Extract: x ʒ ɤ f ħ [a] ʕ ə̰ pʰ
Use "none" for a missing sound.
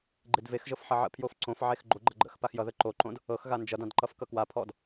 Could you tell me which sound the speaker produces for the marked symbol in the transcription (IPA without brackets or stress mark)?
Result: ʌ